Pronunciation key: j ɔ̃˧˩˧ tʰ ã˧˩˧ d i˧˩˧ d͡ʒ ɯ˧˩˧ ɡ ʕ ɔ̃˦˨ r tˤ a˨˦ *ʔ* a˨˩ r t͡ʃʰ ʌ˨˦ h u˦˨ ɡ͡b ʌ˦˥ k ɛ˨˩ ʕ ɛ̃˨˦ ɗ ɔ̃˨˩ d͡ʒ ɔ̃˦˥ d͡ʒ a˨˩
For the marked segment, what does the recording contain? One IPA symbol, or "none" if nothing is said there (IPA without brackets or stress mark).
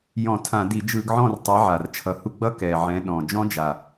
ʕ